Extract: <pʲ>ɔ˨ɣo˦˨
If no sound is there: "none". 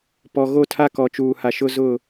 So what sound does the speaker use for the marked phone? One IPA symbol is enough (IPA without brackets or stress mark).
p